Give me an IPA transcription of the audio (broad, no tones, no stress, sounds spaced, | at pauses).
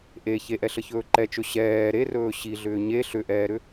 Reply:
ʔ e ç e ʔ ɛ ɬ ə ç ɵː ǃ ɛ t͡ʃ ɵ ɕ ɛː ɾ e r ɵː ɕ i ɮ ʏː ɲ e ɬ ʏ ʔ ɛː ɾ ʏ